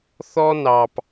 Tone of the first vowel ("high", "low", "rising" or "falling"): high